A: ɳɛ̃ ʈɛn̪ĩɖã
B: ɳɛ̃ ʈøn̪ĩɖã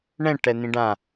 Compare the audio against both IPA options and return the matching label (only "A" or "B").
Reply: A